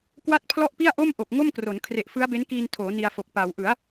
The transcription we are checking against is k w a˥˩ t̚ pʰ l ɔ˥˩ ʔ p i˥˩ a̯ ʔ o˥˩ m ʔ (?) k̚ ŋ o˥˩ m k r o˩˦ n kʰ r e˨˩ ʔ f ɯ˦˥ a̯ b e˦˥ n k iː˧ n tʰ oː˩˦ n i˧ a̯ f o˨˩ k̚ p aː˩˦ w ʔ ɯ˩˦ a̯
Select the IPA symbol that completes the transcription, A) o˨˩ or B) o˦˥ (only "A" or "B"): A